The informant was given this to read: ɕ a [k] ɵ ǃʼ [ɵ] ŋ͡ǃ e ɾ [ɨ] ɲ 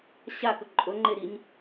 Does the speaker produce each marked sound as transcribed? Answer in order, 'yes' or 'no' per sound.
yes, yes, no

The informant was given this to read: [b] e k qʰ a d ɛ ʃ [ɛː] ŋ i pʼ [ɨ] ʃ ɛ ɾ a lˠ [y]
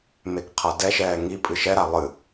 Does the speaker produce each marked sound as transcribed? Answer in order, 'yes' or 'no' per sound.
no, yes, yes, no

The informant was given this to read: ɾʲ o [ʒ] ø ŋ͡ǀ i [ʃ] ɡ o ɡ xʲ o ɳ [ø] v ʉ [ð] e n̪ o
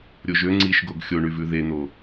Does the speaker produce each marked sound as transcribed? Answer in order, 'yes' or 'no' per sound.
yes, yes, no, yes

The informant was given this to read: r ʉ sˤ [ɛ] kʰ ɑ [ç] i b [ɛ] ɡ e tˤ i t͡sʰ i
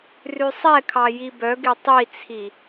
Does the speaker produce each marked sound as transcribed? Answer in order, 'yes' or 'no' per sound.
yes, no, no

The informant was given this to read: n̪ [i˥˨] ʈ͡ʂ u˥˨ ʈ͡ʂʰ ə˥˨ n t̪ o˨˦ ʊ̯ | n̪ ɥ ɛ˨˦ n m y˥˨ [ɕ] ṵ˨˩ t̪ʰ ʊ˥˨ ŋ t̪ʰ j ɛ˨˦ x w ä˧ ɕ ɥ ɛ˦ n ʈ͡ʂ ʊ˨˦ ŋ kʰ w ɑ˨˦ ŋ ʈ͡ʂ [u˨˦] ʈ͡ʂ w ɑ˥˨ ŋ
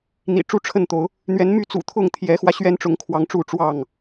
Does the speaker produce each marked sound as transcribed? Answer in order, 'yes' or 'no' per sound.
no, no, no

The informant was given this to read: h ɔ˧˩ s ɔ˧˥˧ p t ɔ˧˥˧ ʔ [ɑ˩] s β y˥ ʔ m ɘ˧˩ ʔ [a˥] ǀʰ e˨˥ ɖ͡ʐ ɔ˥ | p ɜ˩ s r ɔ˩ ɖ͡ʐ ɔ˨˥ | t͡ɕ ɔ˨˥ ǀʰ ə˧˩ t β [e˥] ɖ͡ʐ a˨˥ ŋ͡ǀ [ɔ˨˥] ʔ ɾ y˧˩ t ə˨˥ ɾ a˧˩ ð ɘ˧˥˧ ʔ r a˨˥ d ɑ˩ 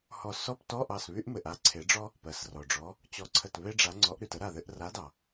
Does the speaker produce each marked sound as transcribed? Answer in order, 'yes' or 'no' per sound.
no, yes, yes, yes

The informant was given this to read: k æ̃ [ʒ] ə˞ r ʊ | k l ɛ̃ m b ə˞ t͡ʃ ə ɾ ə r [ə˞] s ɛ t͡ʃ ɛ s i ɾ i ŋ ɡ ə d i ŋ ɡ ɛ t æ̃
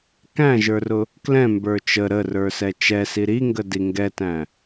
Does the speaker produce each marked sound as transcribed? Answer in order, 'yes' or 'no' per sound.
yes, yes

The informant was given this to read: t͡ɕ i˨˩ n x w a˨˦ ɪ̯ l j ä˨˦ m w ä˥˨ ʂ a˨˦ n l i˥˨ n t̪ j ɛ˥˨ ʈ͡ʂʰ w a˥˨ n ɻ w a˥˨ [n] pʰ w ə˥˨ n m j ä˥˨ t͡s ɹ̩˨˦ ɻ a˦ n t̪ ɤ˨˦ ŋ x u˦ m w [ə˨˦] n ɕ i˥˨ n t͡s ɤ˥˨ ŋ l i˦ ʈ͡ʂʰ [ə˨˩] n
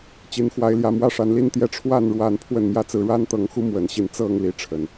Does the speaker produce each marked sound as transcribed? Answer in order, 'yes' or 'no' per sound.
yes, yes, yes

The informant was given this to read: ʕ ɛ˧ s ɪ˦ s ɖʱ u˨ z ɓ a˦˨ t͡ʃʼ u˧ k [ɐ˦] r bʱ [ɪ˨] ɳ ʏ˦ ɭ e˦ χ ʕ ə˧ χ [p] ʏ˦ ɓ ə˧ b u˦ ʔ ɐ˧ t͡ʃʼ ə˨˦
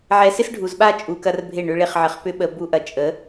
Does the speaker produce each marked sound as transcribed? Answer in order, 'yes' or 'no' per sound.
yes, no, yes

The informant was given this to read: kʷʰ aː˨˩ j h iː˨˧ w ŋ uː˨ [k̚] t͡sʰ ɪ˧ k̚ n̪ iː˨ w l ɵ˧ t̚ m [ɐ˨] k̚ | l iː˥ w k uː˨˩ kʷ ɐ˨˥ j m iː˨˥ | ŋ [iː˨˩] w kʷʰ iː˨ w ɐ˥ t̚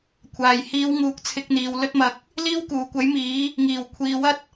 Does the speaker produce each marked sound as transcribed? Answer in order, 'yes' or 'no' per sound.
yes, yes, yes

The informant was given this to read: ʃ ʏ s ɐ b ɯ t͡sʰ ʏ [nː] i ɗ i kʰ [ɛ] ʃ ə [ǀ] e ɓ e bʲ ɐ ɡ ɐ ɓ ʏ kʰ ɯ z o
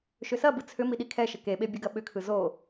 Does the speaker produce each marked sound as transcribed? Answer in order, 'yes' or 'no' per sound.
no, yes, no

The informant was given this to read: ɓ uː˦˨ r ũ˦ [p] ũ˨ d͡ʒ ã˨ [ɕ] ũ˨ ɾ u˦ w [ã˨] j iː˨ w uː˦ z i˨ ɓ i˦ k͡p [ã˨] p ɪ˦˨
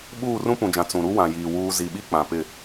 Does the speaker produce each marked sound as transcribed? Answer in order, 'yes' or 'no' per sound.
yes, no, yes, yes

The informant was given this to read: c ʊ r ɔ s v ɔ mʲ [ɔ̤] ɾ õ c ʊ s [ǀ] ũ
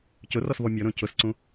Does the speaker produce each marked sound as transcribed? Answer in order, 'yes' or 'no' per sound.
no, yes

